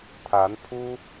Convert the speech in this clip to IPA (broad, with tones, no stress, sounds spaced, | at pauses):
t̪ʰ a˧˥ n pʰ u˥